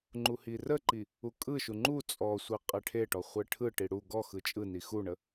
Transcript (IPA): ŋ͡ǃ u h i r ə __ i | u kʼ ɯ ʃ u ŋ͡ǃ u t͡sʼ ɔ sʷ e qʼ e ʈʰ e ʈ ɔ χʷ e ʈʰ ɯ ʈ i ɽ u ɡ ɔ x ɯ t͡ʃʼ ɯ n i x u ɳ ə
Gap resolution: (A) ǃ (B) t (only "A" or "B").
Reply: A